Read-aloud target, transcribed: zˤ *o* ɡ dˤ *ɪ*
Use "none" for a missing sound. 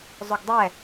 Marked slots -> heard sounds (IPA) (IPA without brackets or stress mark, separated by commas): o, ɛ